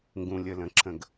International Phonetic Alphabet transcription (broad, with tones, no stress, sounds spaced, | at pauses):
ŋ ɡ ũ˩ lʲ ə˩ l ə̃˩ ǁ ə̃˩ ɡ